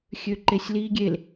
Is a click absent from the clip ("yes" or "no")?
no